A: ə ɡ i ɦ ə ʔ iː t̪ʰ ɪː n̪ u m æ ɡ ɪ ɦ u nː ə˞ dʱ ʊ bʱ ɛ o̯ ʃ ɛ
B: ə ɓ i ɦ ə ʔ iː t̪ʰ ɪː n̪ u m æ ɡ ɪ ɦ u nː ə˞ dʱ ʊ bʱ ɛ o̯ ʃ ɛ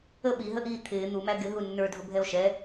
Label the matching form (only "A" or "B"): B